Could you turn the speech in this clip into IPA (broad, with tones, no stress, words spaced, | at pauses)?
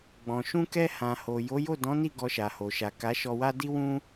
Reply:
ɡ͡bɔ̃˨ ʃũ˧kɛ˧ hã˨ho˨ jo˨˦jo˦˨dɔ̃˨˦ni˦˨ ɡɔ˧ʃa˨ho˨ ʃa˨ka˨˦ʃɔ˧wa˦ di˦wũ˦